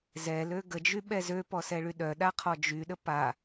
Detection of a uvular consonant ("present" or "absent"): present